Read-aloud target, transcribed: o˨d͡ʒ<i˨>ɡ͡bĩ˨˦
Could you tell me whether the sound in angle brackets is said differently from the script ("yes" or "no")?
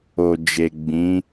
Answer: yes